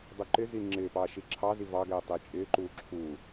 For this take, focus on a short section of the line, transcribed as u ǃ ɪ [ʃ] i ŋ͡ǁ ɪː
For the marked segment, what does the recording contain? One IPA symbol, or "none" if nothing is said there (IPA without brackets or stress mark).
z